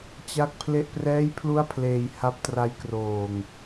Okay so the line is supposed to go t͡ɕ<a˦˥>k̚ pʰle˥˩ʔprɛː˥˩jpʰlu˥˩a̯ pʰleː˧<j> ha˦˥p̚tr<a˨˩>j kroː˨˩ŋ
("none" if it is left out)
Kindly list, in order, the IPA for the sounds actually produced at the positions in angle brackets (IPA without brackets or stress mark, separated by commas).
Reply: a˥˩, j, a˦˥